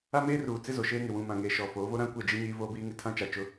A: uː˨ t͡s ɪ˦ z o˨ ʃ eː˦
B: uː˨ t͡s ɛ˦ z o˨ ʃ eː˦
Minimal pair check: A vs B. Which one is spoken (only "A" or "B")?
A